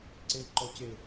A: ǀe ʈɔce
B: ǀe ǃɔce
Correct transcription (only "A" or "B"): B